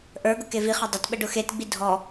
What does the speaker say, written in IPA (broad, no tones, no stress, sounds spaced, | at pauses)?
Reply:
ʔ ə˞ ɡ ʊ k e v i χ ɐ dˤ ɐ t ɓ ə ɖ ʊ x e t ɡ͡b i dʱ ɔ